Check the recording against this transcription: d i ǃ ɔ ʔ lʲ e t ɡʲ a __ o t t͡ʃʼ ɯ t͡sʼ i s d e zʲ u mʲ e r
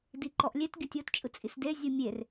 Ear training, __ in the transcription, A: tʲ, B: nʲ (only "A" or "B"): A